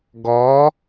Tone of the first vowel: rising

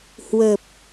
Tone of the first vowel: low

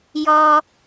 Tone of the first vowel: high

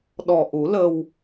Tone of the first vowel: low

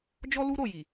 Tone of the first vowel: high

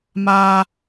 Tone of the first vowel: high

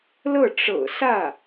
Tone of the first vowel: falling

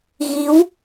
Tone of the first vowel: rising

